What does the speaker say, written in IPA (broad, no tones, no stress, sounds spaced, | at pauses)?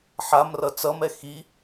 ħ a m r ʌ t͡s ʌ m ɛ x i